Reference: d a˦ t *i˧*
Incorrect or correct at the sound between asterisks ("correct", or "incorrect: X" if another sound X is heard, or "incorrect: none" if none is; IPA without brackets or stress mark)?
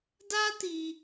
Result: correct